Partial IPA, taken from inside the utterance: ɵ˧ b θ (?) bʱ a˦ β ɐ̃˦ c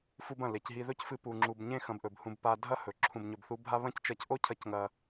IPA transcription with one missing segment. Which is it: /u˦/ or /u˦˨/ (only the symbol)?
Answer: u˦